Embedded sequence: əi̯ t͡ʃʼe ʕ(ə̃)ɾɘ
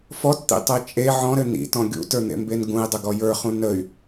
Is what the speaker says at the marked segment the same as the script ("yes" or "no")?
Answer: no